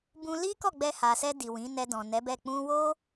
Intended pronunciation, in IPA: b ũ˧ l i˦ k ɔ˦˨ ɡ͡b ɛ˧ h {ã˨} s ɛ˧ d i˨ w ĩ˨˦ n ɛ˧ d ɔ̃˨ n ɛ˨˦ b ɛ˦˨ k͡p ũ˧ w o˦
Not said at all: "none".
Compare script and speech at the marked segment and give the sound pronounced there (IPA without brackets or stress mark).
a˨